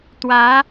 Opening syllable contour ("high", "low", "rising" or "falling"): rising